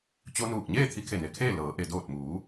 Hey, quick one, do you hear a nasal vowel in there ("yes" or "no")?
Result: no